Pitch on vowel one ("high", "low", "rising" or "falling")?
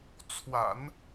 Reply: low